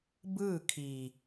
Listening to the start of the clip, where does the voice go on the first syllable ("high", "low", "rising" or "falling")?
falling